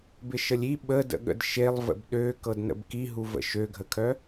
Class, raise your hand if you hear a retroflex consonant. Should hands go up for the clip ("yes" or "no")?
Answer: no